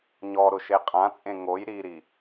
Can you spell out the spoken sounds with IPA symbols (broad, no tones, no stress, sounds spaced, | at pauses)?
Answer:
ɲ ɔ ɾ ʊ ʃ e qʼ ã t͡sʼ ẽ ŋ o j ɾ i ɾ i